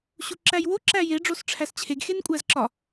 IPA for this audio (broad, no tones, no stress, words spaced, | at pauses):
ɕuǁæjwo ǁæje ɖ͡ʐosʈ͡ʂʰæst͡ɕʰeɡ xenkʷʼæzǁɒ